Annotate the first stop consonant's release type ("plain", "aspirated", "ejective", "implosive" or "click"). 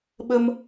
implosive